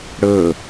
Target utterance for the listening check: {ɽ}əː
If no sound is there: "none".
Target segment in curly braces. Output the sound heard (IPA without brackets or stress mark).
ɽ